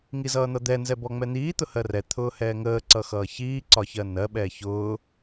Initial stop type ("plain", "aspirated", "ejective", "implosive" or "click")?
plain